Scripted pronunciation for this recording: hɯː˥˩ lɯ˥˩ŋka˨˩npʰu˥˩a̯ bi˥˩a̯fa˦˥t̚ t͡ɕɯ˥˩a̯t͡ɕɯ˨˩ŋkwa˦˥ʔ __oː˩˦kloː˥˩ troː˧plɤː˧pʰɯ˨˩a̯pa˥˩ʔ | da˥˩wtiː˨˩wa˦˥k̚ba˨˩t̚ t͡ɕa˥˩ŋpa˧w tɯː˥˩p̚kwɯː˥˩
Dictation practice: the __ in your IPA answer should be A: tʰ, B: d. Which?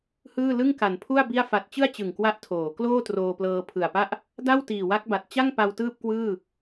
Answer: A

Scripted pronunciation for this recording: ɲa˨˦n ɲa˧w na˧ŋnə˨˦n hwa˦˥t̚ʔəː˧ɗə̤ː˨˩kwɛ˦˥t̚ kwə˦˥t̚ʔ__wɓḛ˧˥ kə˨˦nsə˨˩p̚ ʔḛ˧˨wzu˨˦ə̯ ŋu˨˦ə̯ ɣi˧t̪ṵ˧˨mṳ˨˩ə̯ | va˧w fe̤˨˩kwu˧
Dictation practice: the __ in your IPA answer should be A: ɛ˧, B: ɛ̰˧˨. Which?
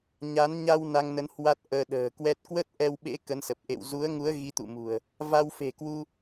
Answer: A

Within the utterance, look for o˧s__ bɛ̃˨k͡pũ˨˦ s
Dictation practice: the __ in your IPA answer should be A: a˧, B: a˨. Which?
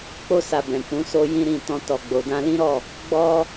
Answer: B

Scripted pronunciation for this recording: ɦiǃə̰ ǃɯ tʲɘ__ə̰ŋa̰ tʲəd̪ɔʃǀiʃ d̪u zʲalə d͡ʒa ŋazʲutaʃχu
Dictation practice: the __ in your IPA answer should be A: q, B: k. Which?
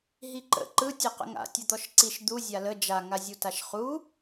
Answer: A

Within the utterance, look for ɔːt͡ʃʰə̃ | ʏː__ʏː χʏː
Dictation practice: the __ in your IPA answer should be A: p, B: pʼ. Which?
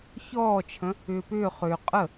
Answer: A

